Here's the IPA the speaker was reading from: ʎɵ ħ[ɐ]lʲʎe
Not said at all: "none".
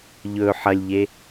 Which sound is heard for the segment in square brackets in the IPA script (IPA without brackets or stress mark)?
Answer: ɐ